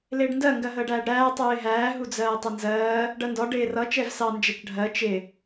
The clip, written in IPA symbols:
l ɪː ɖ n d ɜ ŋ ɡ ɜ ɦ əː ɖ æː ɖ ɾ æː tˤ uː ɪ̯ ɦ æː ɦ u d͡z ɜː tˤ ʌ n z ɜː | ɖ ɜ n d ɒ ɖ ɪː r ʌ t͡ʃ ɛ v s ɑ n d͡ʒ ɛ t͡ʃ ɖʱ ɜ t͡ʃ ɪ

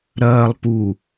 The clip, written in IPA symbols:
ɾ ɐː lˠ p u

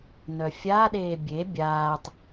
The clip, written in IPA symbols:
n œ fʲ a ɗ eː bʲ e bʲ aː tˤ

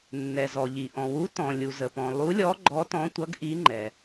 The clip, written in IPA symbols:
nː ɛ˩ z ɔ˩ ʎ i˩ ʔ ɔ̃˩ w u˨˦ t ɔ̃˩ lʲ u˩ z ə˩ p ɔ̃˩ lˠ u˨˦ lʲ ɔ˨˦ ɡ͡ǃ ɔ˨˦ t ɔ̃˨˦ tʷ ʌ˨˦ ɡ ʔ i˨˦ ŋ͡ǃ ɛ˩

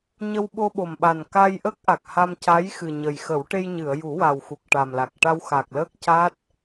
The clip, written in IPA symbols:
ɲ ə˧ w ɓ o˧ ɓ o˨˩ m ɓ a˨˩ n k a˧ j ʔ ə˦˥ k̚ ʔ a˨˩ k̚ h a˧ m c a˧˥ j x ɨ˨˩ ɲ ə˨˩ j x ə˨˩˦ w ʈ e˧ j ɲ ɨ˨˩˨ ə̯ j u˨˩˦ w a˨˩ w x u˨˩ k̚ ʈ a˨˩ m l a˨˩ k̚ ʈ a˧ w x a˨˩ k̚ l əː˦˥ k̚ c a˦˥ t̚

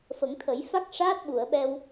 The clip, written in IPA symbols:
f ə˨˩˦ ŋ t̪ʰ ə˨˩˦ j f a˦˥ k̚ ʂ aː˦˥ t̚ ɓ u˨˩˨ ə̯ ɓ ɛ˧ w

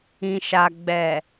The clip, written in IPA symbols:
ĩ˨ ʃ a˨ ɡ͡b ɛ˨

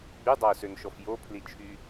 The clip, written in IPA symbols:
ɡ͡b y dˤ ɑ ʊ̯ s ø n ʃ ɔ f j o pʰ l i t͡ʃʰ y

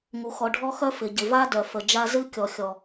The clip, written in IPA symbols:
ŋ u˨ x ɔ˨ ɖʱ ɔ˦ x œ˦ f ɪ˨ ɟ ɪ˨ v a˦ d œ˨ f ə˨ d͡ʒ a˦ z ɨ˦ kʲ ɔ˨ xʲ ɔ˨

